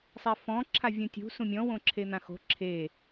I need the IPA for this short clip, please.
sˤ e f ɔ̃ ǁʰ a vʲ ũ tʲ ṳ s ũ mʲ ɔ̃ w õ ǁʰ e n̪ ã x o̤ ǁʰ e

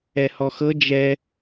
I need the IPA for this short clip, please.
ɛ h ɔ x ɤ d͡ʒ ɛ

